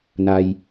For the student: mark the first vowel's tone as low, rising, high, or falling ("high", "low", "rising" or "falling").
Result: low